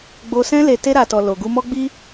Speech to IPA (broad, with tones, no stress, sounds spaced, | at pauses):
ɡ͡b o˧ s ɛ̃˦ l e˧ t e˧ ɾ a˨ t ɔ˨ l o˨ ɡ u˧ m ɔ˦ ɡ͡b i˦